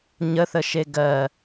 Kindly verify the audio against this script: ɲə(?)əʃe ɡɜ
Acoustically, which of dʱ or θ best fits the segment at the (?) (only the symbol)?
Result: θ